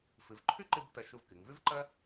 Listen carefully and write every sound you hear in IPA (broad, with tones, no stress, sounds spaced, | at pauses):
f ɨ˩˧ v ǃʰ ʉ˥ ǃ ɨ˧ b t ɐ˧ ʃ u˧ v k ɨ˩˧ ŋ v ʉ˥ v ǃ ɐ˥